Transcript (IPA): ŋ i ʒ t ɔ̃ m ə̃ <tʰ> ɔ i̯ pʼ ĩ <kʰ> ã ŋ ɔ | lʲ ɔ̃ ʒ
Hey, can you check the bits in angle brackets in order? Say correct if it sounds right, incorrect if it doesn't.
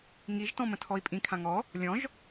correct, correct

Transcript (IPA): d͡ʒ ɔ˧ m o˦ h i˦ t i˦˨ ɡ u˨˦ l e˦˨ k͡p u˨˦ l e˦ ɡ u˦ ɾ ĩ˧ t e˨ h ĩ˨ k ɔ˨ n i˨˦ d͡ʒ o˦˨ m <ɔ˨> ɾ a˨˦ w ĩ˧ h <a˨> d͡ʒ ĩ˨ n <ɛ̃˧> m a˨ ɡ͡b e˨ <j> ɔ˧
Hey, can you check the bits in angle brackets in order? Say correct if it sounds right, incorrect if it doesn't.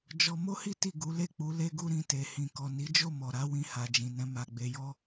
correct, correct, correct, correct

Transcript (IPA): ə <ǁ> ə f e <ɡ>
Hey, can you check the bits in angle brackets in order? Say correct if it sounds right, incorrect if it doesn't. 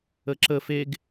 correct, correct

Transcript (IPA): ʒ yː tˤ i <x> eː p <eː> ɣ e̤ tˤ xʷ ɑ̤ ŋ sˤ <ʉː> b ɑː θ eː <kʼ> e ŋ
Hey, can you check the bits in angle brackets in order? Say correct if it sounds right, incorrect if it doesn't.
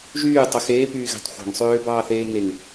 correct, incorrect: yː, incorrect: øː, incorrect: ŋ

